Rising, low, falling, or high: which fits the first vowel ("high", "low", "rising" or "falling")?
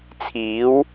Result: rising